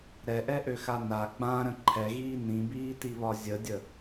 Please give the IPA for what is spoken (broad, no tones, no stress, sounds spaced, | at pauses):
ɾ ɛ ʔ ɛ ʔ ø x a n a ɡ͡b ã ɾ ə̃ ǃʰ ɛ ɣ iː n ĩ b iː t i β ɒ zʲ ə dʲ ə